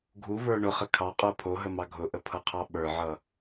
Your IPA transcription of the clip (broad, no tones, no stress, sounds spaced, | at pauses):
ɡʱ u v ə˞ ɳ ʊ χ ə kʰ ɑ qʼ ə˞ pʰ o ɦ ə m ɑ ɡʱ ʊ ʔ ə pʰ ʌ qʰ ɑ ɓ ə˞ ʕ ʌ